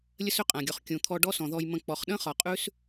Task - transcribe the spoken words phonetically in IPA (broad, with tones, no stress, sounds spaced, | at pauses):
lʲ ə˦ s ʏ˦ qʼ ã˨ ɡʲ ɔ˨ χ kʲ ũ˨ t̪ʰ ɔ˧ ɖ ɔ˦ s ɔ̃˨ ð ɔ˧ j m ə̃˧ k͡p ɔ˨ χ ɗ ə̃˦ χ ɒ˨ qʼ ʉ˦ s